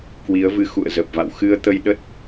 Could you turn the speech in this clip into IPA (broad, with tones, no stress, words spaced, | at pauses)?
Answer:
kwi˨˦ə̯vɨ˧xṵ˧˨ə̯ zə˨˩p̚va̰˧˨w xɨ˧ə̯t̪ə˧jɗə˦˥t̚